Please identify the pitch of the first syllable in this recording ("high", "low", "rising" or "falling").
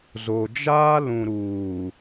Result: low